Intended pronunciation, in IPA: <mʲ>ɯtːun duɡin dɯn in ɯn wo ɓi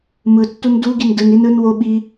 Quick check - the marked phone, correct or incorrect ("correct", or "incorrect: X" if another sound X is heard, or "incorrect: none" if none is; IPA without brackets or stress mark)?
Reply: incorrect: m